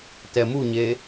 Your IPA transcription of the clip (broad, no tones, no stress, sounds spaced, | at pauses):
t ɛ m u ɲ e